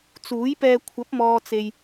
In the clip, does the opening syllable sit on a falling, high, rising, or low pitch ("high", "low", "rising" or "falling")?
rising